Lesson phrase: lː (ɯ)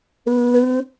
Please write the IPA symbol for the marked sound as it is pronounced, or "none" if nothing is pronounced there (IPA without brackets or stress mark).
ɯ